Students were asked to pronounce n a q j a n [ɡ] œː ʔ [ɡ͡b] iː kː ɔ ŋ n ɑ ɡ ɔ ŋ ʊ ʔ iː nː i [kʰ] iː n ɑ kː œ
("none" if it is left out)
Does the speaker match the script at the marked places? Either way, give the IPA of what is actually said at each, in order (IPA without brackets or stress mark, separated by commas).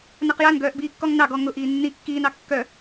ɡ, b, kː